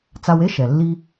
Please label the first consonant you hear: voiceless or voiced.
voiceless